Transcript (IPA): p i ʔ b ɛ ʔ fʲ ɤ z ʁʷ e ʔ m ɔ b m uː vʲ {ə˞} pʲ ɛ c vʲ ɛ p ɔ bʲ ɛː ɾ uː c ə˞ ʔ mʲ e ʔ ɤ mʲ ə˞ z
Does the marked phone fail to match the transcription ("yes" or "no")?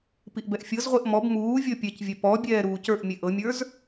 yes